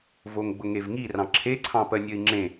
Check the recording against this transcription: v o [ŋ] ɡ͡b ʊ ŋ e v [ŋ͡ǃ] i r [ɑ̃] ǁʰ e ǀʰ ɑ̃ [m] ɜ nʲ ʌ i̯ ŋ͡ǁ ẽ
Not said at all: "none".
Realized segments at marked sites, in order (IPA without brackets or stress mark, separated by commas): ŋ, ŋ, ɑ̃, p